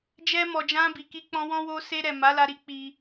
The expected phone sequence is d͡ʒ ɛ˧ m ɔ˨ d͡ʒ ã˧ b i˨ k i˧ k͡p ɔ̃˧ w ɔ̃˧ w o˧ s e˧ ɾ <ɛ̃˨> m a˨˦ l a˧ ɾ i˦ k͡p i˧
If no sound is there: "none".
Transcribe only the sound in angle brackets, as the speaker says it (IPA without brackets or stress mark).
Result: ɛ˨